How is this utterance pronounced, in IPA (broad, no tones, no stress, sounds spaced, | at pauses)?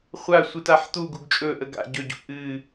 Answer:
χʷ a sʷ ɨ t a ħ t̪ u ɡ u ɡ t͡ʃʼ ɵ ʔ ə ɡ a̰ ɟ ɵ ɟ ṵ ʔ ɨ